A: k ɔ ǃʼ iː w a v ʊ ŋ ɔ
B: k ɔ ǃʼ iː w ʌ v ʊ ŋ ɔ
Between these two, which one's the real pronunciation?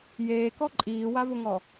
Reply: A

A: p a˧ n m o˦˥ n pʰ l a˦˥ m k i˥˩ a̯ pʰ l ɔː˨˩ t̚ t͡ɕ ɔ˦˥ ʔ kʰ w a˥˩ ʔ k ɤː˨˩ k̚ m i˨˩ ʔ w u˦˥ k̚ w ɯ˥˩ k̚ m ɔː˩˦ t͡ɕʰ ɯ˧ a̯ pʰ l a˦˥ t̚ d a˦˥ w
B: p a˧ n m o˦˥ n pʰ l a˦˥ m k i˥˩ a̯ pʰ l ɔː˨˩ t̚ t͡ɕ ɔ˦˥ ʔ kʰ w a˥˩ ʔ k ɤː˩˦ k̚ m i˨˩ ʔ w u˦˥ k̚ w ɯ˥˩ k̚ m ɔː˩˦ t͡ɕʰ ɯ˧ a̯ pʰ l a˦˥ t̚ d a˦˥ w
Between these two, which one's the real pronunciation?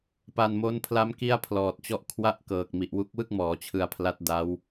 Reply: A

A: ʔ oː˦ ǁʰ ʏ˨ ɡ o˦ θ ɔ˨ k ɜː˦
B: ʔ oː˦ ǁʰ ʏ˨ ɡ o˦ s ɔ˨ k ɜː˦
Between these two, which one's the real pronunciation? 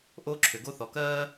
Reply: A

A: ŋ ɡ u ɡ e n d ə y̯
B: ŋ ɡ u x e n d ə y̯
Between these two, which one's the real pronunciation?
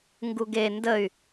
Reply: A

